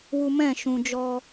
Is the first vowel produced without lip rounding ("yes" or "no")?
no